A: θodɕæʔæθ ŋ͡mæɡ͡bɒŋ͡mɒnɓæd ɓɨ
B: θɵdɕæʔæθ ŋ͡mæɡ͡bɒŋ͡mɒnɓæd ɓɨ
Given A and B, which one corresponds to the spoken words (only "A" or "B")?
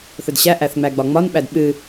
B